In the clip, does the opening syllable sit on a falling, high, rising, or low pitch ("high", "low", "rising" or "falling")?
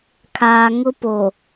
low